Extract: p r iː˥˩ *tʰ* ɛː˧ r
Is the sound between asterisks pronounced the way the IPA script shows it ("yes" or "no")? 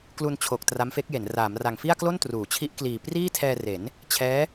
yes